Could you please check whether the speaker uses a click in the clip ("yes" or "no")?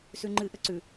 yes